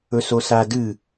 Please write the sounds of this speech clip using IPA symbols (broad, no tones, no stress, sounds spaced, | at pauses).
ɵ s o s a d ɨ